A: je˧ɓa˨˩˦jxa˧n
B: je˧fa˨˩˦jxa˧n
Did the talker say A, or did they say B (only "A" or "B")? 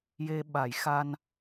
A